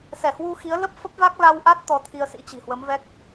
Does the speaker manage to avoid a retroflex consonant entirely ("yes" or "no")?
yes